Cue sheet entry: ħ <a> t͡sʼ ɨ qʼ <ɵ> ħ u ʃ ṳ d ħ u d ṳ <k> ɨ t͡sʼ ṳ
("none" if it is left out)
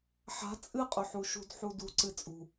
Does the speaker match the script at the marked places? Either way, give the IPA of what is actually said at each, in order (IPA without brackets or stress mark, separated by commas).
a̤, ɵ, ǀ